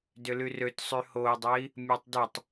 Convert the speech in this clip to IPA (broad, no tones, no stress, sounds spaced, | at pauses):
d ʏ l y r ø t sˤ y h o u̯ dˤ e i̯ | mʲ ɔ tˤ d ʏ tˤ